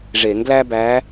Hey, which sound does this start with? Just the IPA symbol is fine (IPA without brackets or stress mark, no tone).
ʐ